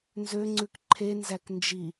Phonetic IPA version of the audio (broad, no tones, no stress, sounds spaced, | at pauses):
n z ø ŋ͡ǀ ʉ k ǃʰ e n z æ k n d͡ʒ i